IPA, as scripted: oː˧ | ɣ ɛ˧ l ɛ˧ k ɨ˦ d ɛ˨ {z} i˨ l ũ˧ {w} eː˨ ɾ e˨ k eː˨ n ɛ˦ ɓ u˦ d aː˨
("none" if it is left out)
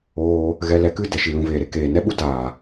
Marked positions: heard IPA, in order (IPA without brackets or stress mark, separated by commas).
ʃ, v